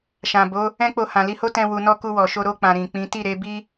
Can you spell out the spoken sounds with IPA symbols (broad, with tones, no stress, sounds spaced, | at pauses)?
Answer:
ʃ ã˨ b o˨˦ | ɛ̃˦ k͡p o˧ h ã˨ l i˧ h o˦ t ɛ̃˧ w u˨ n ɔ˧ k u˧ w ɔ˨ ʃ o˧ ɾ o˧ k͡p ã˨ ɾ ĩ˨ k͡p ĩ˨˦ t i˦˨ ɾ e˨˦ b i˦